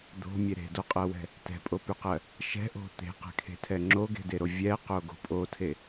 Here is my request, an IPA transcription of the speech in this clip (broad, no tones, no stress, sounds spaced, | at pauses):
d̪ o̤ mʲ e ɾ e̤ d o qʼ ɜ w ɛ̤ | t ɛ̤ pʼ o p y q ɜ | ʃ ɛ̤ ʔ o̤ t̪ e̤ q ɛ̤ kʰ e̤ tʰ ɛ ŋ͡ǁ o ɡ e̤ d e ɾ o vʲ ɛ q o ɡ o̤ pʼ o tʰ e